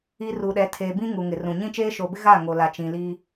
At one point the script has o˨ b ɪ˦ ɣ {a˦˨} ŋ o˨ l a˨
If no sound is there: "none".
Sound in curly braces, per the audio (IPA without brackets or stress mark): a˦˨